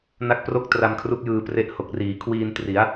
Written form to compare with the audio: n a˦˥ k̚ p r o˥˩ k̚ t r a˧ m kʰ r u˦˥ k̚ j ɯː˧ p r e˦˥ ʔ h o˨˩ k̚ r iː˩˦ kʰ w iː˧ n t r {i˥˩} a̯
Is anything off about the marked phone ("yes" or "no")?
yes